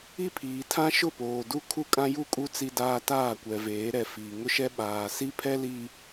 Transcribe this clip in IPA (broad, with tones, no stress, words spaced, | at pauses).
i˦pʰiː˨ tʰã˦ʃʊ˦˨poː˨du˦ kʰu˦kʼã˦ju˦˨kʼu˦ t͡si˦daː˦ taː˦˨kʷɛ˨ veː˨˦ɾɛ˨fiː˨ ŋʊ˦ʃɛ˦ ɓaː˨ si˦pʰɛ˦li˨